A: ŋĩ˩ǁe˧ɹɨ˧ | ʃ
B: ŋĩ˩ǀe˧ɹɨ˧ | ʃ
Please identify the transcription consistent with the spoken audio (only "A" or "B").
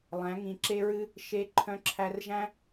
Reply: A